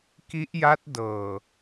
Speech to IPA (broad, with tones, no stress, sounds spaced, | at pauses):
k i˦˥ ʔ j a˦˥ t̚ d ɤː˨˩